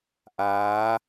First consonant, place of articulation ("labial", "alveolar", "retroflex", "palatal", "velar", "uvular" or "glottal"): glottal